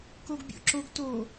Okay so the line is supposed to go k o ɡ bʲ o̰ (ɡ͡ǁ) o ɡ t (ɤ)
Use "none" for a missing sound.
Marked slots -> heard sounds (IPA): ǁ, o

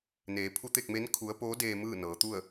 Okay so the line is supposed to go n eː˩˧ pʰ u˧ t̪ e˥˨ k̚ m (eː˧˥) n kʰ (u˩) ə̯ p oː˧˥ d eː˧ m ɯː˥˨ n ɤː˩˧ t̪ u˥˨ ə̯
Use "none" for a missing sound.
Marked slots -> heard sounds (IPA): e˧˥, u˧˥

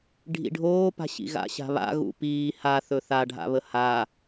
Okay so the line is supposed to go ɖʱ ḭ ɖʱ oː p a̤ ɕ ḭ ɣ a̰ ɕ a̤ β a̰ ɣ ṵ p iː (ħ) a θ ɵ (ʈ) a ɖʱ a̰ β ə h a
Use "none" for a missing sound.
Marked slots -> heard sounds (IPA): h, θ

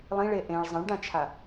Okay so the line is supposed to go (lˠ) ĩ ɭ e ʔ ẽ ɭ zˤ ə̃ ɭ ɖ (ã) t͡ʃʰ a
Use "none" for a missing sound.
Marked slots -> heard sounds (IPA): lˠ, ã

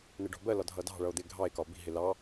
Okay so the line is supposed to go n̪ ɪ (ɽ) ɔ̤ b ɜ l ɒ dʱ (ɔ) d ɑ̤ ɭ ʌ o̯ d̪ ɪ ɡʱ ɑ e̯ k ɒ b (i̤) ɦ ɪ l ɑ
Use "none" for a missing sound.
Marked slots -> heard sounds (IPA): ɖ, ʌ, i̤

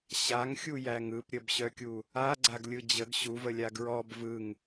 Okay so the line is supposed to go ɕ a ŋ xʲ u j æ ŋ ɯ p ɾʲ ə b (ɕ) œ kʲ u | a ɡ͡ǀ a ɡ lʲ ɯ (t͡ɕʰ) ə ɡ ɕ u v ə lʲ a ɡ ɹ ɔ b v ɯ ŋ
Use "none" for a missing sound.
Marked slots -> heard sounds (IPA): ɕ, d͡ʑ

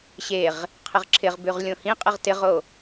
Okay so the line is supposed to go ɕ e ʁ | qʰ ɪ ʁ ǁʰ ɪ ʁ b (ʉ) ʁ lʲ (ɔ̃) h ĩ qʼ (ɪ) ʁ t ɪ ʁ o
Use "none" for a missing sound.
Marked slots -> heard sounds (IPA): ʉ, õ, ɪ

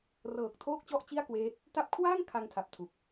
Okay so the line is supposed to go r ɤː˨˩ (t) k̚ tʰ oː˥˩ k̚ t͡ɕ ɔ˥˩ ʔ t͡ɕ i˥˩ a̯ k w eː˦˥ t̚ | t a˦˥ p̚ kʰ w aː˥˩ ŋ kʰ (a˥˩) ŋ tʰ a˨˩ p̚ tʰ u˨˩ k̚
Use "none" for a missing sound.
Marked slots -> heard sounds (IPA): none, a˧

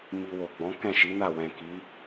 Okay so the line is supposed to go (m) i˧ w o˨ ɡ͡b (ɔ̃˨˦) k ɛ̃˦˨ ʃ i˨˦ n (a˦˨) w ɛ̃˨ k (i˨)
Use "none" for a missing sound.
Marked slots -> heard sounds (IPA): m, ɔ̃˨˦, a˦˨, i˨˦

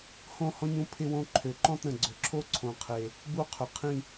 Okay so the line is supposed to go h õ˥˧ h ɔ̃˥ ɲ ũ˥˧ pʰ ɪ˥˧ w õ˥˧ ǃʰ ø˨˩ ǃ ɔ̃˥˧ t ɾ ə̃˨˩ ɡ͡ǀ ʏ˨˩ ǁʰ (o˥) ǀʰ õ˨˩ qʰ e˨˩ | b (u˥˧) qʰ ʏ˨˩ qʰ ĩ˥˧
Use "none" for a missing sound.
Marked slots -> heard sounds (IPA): o˥, u˥˧

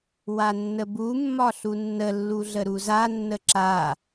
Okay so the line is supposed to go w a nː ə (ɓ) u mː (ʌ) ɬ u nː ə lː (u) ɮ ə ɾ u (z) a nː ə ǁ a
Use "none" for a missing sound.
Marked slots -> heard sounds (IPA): b, ɒ, u, z

